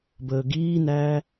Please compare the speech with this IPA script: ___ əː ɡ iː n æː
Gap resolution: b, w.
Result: b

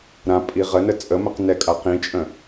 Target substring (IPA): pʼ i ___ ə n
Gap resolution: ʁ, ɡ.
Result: ʁ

